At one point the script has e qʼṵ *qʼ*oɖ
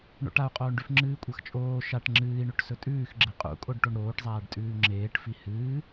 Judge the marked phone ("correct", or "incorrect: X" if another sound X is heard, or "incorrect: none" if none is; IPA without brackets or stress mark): incorrect: kʼ